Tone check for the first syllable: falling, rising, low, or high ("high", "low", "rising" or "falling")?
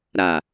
low